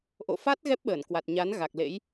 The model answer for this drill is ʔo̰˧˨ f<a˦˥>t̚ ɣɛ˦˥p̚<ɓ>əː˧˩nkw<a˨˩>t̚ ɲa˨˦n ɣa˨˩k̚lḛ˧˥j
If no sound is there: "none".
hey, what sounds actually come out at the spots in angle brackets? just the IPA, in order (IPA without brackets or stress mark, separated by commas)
a˦˥, ɓ, a˨˩